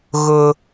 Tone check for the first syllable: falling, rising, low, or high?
low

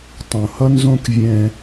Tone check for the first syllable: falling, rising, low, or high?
low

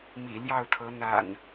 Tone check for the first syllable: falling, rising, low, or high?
low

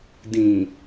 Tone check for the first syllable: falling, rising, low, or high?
low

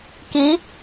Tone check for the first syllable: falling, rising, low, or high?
rising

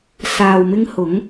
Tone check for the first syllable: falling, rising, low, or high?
low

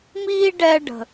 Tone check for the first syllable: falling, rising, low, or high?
high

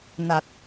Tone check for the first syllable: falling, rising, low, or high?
low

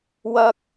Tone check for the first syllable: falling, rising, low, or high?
high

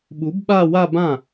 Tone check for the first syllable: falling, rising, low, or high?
rising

